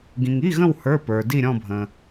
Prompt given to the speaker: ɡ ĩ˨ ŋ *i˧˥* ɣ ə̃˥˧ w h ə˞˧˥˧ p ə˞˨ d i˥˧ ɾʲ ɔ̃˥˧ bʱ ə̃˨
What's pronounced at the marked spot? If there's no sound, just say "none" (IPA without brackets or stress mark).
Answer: i˧˥˧